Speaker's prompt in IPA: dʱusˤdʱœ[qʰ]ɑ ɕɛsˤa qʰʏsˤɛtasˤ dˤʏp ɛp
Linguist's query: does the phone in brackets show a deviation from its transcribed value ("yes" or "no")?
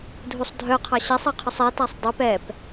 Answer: no